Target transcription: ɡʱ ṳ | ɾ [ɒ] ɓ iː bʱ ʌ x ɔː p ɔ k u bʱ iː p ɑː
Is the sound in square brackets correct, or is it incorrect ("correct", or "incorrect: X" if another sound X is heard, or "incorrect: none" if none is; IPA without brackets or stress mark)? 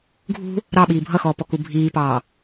incorrect: ɑ